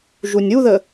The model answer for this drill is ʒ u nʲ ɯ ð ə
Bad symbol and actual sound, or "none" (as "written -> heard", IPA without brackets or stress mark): ɯ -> u